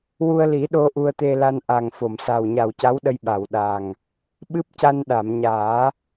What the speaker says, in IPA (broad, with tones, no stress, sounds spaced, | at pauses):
w u˧ ə̯ l i˨˩˦ ɗ o˧ ʔ u˧ ə̯ t̪ e˧ l a˧ n ʔ a˨˩ ŋ f o˨˩˨ m s a˨˩ w ɲ a˨˩ w c a˧˥ w ɗ ə˧ j ɓ a˨˩˨ w ɗ a˨˩ ŋ | ɓ ɨ˦˥ p̚ c a˧ n ɗ a˨˩˨ m ɲ aː˨˩˦